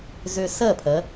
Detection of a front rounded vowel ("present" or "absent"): present